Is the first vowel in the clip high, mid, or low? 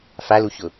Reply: low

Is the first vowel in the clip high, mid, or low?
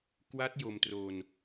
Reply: low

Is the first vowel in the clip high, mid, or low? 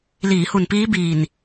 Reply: high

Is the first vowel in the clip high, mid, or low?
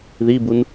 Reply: high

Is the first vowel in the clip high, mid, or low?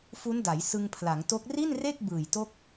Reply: high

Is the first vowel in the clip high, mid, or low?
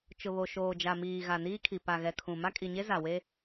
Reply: high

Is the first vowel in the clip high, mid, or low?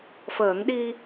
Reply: mid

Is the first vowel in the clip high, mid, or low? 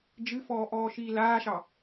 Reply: high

